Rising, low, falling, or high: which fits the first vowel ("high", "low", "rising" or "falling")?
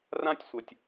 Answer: high